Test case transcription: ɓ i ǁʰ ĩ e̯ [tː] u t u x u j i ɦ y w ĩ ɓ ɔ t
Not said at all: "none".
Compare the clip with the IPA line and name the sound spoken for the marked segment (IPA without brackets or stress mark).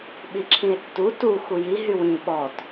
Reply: tː